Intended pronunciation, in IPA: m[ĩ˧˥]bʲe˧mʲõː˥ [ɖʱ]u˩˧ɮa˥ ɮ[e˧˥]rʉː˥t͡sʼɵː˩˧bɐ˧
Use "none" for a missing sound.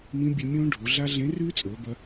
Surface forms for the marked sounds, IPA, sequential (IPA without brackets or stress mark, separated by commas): ĩ˧˥, ɖʱ, ẽ˧˥